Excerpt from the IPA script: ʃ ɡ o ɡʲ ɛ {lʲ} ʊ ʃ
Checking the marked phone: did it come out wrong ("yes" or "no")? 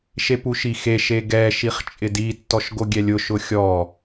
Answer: no